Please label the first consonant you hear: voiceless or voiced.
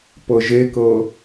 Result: voiceless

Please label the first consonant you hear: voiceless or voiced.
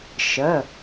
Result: voiceless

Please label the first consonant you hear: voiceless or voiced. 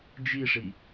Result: voiced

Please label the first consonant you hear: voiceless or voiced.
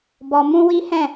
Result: voiced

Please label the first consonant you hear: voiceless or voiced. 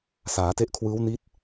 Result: voiceless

